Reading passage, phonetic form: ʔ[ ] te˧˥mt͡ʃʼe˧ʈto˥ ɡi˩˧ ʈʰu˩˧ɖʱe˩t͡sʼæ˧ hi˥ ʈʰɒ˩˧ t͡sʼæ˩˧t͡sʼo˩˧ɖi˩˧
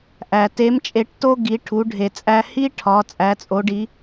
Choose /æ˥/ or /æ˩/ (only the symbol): æ˩